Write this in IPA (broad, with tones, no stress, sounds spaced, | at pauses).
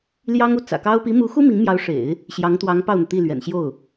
l j ɑ˥ ŋ u˧˥ t͡s ä̰˨˩ k ɑ˥ ʊ̯ p i˧˥ m u˧˥ x u˥ m i˧˥ ŋ m j ɑ˧˥ ʊ̯ ʂ ḛ˨˩˦ ɪ̯ | ɕ j ɑ˧˥ ŋ t̪ w ɑ˧˥ ŋ p ɑ˥˩ ʊ̯ n̪ ɤ˩ t̪ i˥˩ l ɥ ɛ̰˨˩ n ɕ j o˥˩ ʊ̯